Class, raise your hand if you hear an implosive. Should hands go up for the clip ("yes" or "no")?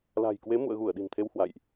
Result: yes